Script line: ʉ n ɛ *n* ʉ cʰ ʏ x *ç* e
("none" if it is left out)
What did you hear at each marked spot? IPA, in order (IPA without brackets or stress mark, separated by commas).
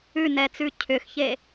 t͡s, ç